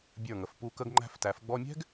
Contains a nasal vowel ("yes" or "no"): no